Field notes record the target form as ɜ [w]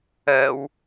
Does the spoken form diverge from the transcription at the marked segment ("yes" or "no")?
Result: no